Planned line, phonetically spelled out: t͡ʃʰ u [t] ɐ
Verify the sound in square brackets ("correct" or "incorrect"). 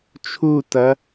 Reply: correct